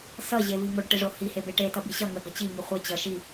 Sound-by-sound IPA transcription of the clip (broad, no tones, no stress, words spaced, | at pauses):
sʌʑevi ŋoɖʈeʐo hihebe ʈetʌbi ɕʌ ŋəɡʌ t͡ɕiŋi χʷe t͡ɕʌ ʃi